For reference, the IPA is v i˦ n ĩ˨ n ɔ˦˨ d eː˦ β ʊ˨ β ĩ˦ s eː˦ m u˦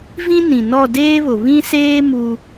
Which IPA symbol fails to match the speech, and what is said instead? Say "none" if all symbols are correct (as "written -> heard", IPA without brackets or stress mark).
i˦ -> ĩ˦